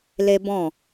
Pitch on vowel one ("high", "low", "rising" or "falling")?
high